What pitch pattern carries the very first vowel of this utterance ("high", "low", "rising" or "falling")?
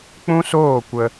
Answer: high